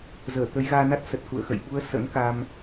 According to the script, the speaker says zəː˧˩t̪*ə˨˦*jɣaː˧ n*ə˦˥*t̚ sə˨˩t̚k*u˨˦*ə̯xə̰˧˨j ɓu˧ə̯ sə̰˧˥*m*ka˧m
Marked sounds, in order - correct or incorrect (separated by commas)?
correct, incorrect, incorrect, incorrect